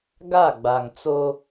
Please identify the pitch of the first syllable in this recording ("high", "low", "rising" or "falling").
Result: falling